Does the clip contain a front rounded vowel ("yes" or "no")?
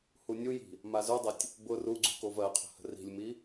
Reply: no